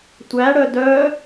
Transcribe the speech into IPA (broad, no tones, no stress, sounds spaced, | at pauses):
tʷ æ ɽ œ d œ